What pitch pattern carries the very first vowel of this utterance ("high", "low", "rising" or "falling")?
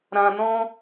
low